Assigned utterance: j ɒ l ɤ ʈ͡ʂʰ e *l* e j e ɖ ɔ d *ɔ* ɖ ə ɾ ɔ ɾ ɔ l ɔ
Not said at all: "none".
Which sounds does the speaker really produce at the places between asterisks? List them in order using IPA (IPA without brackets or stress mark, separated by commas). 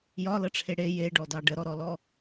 ɽ, ɑ